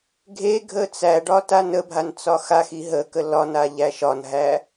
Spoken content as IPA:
ɡʱeɡʱə t͡sæɖɒ tanəbʱan t͡sɒxaxi ɦəkə lɒna ʎæʃɒnɦæ

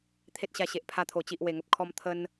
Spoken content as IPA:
t̪ʰe˦t̚ɕa˧ɕe˨ʔ pʰa˧t̪ʰo˨˩t͡ɕi˨ʔ we˨˩ŋə˨p̚kʰɔ˧m t̪ʰə˧n

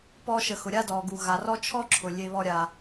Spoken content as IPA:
pɔ˦ʃə˨ xʊ˩ ɾʲa˥dɔ˩ ɡu˩ɣa˩rɔ˥ t͡ʃʰɔ˥ǁʰʊ˩ lʲe˨ βɔ˨ɾʲa˩

